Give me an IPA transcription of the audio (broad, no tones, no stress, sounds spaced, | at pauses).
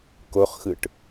k o χ x ɯ ʈ